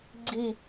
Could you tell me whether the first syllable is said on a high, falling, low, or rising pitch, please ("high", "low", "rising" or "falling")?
falling